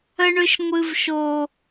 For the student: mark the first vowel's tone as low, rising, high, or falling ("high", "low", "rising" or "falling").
high